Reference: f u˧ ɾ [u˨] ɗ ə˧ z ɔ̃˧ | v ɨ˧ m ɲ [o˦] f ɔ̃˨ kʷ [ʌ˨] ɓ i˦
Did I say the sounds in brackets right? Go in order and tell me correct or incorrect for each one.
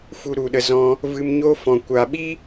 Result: correct, correct, incorrect

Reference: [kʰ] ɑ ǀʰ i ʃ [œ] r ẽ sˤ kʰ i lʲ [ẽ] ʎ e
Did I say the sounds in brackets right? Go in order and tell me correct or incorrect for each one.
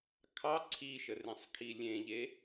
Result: correct, incorrect, correct

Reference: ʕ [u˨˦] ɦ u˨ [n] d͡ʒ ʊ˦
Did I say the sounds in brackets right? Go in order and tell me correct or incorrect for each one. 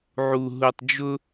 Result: incorrect, incorrect

